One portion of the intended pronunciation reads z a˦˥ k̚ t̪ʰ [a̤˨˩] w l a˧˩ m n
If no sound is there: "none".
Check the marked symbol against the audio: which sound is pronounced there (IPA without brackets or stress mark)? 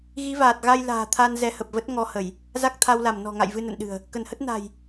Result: a˧